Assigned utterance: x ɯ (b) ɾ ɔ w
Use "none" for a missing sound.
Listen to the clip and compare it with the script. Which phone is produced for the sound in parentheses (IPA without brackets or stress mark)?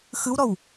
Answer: w